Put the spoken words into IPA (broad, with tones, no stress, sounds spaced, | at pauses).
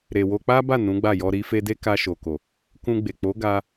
ɾ e˨ w o˧ k͡p a˦ b a˦˨ n ũ˨˦ ɡ͡b a˦˨ j ɔ˧ ɾ i˦ f e˦ d e˦ k a˧ ʃ o˨ k o˨ | k ũ˧ ɡ͡b e˨ k͡p o˨˦ ɡ a˧